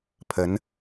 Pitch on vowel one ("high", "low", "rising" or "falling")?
rising